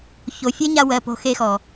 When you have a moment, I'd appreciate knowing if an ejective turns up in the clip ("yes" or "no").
no